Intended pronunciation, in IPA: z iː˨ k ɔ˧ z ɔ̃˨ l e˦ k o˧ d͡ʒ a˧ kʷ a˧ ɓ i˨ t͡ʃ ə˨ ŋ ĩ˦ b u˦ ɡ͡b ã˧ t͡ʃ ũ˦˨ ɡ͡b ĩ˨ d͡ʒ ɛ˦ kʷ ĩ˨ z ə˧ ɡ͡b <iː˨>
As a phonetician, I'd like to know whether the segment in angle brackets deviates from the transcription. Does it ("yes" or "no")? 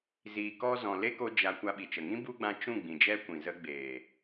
yes